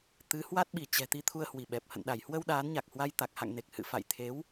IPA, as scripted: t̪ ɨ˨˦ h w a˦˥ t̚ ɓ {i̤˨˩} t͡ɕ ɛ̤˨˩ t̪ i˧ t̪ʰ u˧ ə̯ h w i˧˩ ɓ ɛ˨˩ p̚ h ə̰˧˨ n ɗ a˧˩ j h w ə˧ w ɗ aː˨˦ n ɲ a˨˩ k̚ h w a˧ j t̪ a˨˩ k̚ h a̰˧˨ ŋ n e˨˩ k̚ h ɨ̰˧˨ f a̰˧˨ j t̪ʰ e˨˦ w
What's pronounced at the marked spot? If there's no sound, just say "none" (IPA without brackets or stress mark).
i˧˩